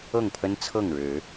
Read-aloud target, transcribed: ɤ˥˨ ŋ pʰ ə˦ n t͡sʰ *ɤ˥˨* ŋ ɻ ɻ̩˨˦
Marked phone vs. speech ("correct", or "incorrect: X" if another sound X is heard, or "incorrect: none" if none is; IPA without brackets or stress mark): correct